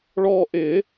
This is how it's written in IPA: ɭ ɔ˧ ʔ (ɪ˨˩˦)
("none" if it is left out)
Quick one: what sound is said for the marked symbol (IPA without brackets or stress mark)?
ɪ˨˩˦